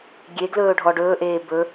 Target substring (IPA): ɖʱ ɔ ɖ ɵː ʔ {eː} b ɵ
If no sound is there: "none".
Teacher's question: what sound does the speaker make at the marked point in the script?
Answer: eː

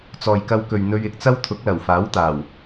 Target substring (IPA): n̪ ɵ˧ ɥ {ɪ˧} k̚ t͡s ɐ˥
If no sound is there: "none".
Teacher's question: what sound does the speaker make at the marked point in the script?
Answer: ɪ˧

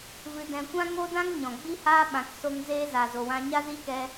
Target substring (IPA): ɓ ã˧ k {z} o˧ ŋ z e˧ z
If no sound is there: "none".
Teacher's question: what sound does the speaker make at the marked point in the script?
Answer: s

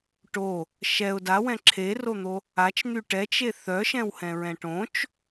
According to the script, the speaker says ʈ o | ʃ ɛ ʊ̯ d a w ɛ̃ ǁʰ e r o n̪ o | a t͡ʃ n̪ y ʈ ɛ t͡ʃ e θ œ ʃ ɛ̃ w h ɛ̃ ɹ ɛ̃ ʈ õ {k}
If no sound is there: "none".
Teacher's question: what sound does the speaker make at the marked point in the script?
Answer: t͡ʃ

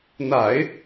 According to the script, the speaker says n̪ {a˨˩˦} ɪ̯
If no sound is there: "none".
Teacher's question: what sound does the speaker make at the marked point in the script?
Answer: a˨˩˦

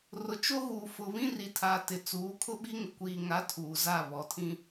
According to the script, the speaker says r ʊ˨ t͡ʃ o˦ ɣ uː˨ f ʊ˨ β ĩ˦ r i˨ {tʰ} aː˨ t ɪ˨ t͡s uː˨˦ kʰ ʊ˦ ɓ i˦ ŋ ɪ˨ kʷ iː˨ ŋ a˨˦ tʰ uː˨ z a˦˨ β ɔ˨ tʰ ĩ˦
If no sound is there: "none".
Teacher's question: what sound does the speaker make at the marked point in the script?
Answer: tʰ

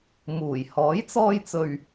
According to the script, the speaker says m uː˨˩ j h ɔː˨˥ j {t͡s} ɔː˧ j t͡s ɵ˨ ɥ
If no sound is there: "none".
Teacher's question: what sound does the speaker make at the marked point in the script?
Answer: t͡s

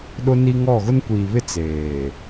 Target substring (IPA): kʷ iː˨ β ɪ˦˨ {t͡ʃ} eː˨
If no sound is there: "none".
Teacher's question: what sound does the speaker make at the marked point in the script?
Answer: t͡s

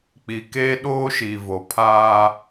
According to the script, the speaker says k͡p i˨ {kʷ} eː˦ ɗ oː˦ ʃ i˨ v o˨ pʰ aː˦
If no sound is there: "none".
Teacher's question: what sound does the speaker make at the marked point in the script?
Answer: k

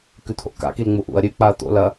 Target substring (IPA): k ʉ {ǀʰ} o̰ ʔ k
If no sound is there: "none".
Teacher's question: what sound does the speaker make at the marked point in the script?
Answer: t̪ʰ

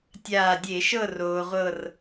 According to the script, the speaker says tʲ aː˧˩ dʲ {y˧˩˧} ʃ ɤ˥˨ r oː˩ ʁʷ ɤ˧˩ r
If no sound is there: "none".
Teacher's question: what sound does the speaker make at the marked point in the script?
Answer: e˧˩˧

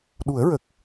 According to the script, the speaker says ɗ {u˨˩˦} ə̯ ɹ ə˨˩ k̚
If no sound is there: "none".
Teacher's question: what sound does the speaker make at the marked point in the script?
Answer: u˨˩˦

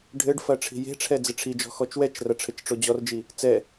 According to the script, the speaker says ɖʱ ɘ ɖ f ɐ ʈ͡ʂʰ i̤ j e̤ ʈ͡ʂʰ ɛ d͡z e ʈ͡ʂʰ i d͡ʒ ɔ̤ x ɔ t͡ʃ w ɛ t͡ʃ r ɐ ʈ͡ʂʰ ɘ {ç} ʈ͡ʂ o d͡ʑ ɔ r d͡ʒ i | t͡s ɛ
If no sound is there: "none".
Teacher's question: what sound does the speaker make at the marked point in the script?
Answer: t͡ʃ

